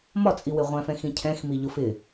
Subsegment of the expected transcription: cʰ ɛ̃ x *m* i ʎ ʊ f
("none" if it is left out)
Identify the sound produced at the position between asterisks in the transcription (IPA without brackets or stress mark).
m